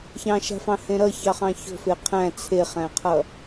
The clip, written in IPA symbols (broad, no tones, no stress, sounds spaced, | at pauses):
ç ɑ̃ ʃ a̤ f ɑ̃ h ẽ ɾ ʌ ç ɑ χ ɑ̃ ç o̤ f e qʰ æ̃ t͡sʰ e χ æ̃ qʰ ʌ